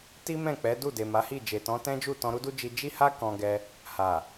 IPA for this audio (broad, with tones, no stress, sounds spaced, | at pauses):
t i˦ m ɛ̃˦˨ k͡p ɛ˨˦ d u˦˨ d e˨ m a˨˦ h i˦˨ d͡ʒ e˨ t ɔ̃˨˦ t ɛ̃˦ d͡ʒ u˦˨ t ɔ̃˧ ɾ u˦ d u˦ d͡ʒ i˧ d͡ʒ i˦ h a˦ k ɔ̃˧ ɡ ɛ˧ | h a˨